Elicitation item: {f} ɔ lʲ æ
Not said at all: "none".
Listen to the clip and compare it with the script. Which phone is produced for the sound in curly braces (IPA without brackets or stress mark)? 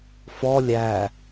f